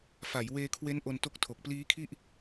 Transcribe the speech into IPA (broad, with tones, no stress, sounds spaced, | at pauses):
f a˩˦ j w eː˧ kʰ w e˦˥ n ʔ o˧ n t o˦˥ k̚ tʰ o˨˩ k̚ p l iː˦˥ kʰ i˥˩ ʔ